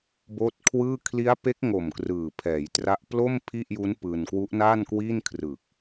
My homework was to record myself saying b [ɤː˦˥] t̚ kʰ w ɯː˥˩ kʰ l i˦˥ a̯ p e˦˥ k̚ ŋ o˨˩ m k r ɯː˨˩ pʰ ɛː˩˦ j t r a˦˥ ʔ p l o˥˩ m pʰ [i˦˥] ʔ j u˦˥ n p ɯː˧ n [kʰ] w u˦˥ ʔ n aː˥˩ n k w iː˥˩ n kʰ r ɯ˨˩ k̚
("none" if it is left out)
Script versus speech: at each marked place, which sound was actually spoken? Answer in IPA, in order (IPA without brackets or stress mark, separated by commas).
oː˦˥, i˥˩, k